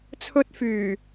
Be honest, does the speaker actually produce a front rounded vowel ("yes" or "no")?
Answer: yes